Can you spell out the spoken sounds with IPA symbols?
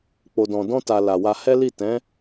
k͡p o˨ d ɔ̃˨ d ɔ̃˧ t a˨ l a˨ w a˧ h ɛ˦ l i˦˨ t ɛ̃˨˦

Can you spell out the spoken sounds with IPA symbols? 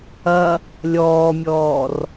ɐ | lʲ ɔː mʲ ɔː r

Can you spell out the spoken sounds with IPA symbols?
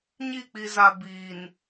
ɲ i˦˨ k͡p i˨ z a˨ b iː˨ n

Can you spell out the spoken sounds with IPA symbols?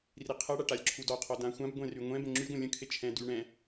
r i qʰ ɛ ɽ a ʈ a lʲ ǁʰ u d ɔ qʰ ɔ d ã xʷ ã b ɡʷ ɛ̃ r y ŋʷ ɛ̃ b ə̃ ŋ͡ǁ y ɡʷ ə̃ lʲ ə̃ kʰ e t͡ʃʰ ɛ̃ d y ɳ ɛ̃

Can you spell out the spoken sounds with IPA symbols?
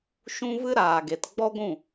ʃ ũ˦ v ɨ˦ ɾ aː˨ ɡ e˨ t ɡ͡b ɔ˦ ɡʷ ũ˦˨

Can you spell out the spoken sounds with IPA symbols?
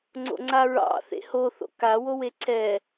ŋ͡ǀ o̰ ŋ͡ǀ a ɹ ɑ̰ θ ḛ h o θ o̰ k a w o w e ǀʰ ɛ

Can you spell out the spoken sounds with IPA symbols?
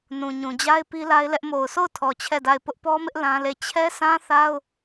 n ũ˨ ɲ ũ˨ d͡ʑ a˦ ɪ̯ p i˦ l a˦ ɪ̯ l ɛ˦ ʔ m o˨ ʊ̯ sʰ o˦˨ ʊ̯ tʰ ɔ˨ t͡ɕʰ ɛ˦˨ d a˦˨ ɪ̯ p ʊ˦ ʔ p ɔ˦ m ɪ˦ ʔ l ã˦ l e˦˨ t͡ɕʰ ɛ˦ s ã˦ θ a˦ ʊ̯

